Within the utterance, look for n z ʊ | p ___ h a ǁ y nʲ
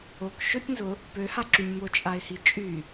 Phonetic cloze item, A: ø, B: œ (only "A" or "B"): A